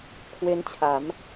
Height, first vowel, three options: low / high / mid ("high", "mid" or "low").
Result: mid